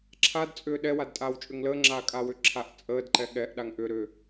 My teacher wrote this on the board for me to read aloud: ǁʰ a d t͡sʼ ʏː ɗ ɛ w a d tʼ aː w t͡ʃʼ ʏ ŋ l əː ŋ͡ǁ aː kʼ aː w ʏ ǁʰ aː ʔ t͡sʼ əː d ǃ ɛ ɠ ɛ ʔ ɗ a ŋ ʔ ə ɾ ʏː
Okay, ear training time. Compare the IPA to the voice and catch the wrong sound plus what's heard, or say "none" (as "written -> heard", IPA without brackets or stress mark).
ə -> ʏ